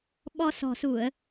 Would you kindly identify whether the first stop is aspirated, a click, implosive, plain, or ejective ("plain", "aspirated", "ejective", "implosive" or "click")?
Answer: implosive